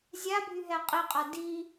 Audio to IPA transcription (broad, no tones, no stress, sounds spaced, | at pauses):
zʲ a bʱ y ɦ ɛ qʼ i qʼ a d i